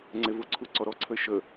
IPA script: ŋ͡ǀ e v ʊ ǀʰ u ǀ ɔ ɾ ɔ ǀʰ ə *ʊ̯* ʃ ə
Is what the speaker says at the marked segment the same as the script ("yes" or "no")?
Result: no